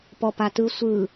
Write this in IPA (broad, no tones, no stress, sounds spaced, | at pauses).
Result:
p ɔ p a t ɯ sʷ ɯ